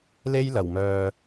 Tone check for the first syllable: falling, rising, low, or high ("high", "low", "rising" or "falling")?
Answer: high